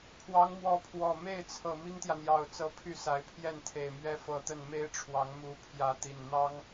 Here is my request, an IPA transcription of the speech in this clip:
pʰ w ɑ˧˥ ŋ m w ɔ˧˥ pʰ w ɔ˨˩ m e˥˩ ɪ̯ t͡sʰ ɤ˨˩ m i˥ ŋ t̪ j ä˨ n̪ j ɑ˨˩ ʊ̯ t͡s ɤ˧˥ pʰ y˥˩ s a˧˥ ɪ̯ pʰ j ɛ˥˩ n t̪ʰ e˨˩ ɪ̯ m ɥ ɛ˥ f ɤ˧˥ t̪ ə˥˩ n m e˥ ɪ̯ ʈ͡ʂʰ w ɑ˧˥ ŋ m u˧˥ pʰ j ä˧˥ t̪ i˨˩ n n̪ ɑ˥ ŋ

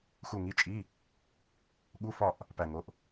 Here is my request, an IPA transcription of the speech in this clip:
x u˦˨ ŋ i˧˥˧ t͡ʃʼ i˧˥˧ | ɠ u˧˥˧ f ɒ˦˨ ʔ | p æ˦˨ ŋ o˧˥˧ ʔ

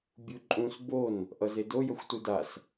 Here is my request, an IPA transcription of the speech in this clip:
bʲ u ǃʼ ũ s b o n | ʔ ʌ z e d o j ʌ xʷ t u d a s

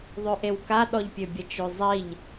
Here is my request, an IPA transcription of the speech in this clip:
ðˤ ø ʔ e w k a ɗ ɔ ʎ pʲ ø bʲ ə t͡ʃ ø zˤ i ʎ

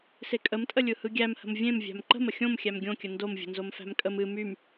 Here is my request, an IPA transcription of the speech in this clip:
s e kʼ ə m tʼ ə lʲ ɯ h ɯ ɡʲ æ m h ə̤ m vʲ ẽ m vʲ æ̤ m ǃ ə̤ m ə xʲ õ m xʲ æ m ɡʲ õ kʲ ə n d o m vʲ ə̤ n z o m f æ̤ m kʼ ə m ɨ m y m

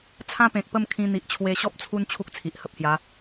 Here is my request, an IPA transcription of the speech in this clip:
t͡sʰ ã˦ p ẽ˨ k̚ p ə˥˧ m kʰ ĩ˧ n̪ i˨ ʔ t͡ɕʰ w e˧ ɕ ɔ˦ p̚ t͡sʰ u˦ n t͡ɕʰ u˦ k̚ t͡sʰ i˨ ʔ h ə˦ p̚ h j a˨˦

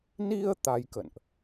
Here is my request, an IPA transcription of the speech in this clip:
n i˧ ə̯ t̪ a˧ j k ə̰˧˨ n ʔ

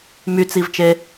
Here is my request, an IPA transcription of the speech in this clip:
m y t͡s i v t͡ʃ e

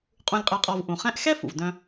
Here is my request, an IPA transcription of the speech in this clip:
qʼ ũ˧ lʲ qʼ ɛ˧ qʼ ɔ˧ v ʔ ũ˨ χ ɛ̃˦ ʔ x ɛ˦ f ṵ˨ v d œ̃˧

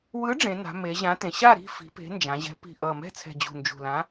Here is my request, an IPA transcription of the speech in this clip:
w ɯ˨˥ ɖ͡ʐ ẽ˩˧ n a̤˩˧ m e˩˧ ʑ ã˨˥ t ẽ˩˧ ɕ a˥˨ ɾ i̤˥˨ f i̤˩˧ p e̤˨˥ n d͡ʒ ã˩˧ ʑ ɛ̤˨˥ p i̤˨˩ ʔ ʌ˨˩ m ɛ̤˥˨ t͡sʰ ɛ̤˨˩ d͡ʑ ṳ˨˩ n d͡ʒ ṳ˨˩ l ã˨˥

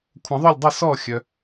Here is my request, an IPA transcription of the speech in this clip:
kʷʰ ə̃˨˩˦ ðˤ œ˥˩ lʲ dˤ o˥˩ s ɔ˥˩ xʲ œ˨

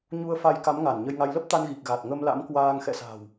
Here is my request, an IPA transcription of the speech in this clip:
ɲ u˧ ə̯ f a˧ j k a˨˦ m ŋ a˧˩ n ɲ ə˧ j ŋ a˧ j l ə˦˥ p̚ t̪ a˧ n ɣ i˨˩ k̚ ɣ a˨˩ t̚ ŋ ə˧ m l a̰˧˥ m k w aː˧ ŋ x ɛ̰˧˨ s a̤˨˩ w

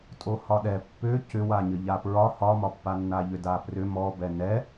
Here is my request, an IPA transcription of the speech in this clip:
tʼ o h ɒ ɗ ɛ pː ʏ c ʏ w a ɲ ə ʎ a p ɹ ɒ h ɒ m ɒ pː a nː a ʎ ʏ d a p r ʏ m ɔ b ɛ n ɛ

